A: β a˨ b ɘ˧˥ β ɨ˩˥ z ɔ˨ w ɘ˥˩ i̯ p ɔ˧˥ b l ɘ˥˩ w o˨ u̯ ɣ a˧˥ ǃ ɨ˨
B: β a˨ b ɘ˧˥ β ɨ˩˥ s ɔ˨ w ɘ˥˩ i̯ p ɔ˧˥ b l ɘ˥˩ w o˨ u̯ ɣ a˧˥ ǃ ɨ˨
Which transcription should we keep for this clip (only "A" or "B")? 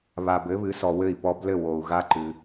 B